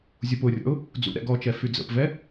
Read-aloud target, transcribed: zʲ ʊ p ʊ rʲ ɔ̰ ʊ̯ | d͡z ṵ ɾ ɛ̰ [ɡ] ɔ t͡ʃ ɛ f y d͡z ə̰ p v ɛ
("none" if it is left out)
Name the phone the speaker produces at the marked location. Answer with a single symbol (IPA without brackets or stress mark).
ɡ